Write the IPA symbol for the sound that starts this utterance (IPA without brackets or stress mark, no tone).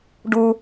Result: ɖ